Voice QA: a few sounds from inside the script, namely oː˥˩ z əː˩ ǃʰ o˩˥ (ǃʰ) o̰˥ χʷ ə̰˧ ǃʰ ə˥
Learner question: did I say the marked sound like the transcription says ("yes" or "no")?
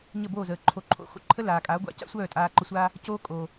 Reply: yes